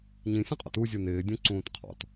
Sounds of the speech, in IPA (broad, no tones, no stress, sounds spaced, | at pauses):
ɲ ĩ sʲ ũ qʼ ɔ̰ t u zʲ u n ɪː dʲ ũ ǀ ũː t qʰ ɔ̰ t